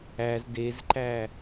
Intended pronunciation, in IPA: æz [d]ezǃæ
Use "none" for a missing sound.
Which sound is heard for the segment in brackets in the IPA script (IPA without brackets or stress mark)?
d